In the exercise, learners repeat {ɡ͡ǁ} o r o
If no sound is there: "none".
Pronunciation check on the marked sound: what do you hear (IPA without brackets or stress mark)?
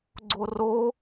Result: ɡ͡ǀ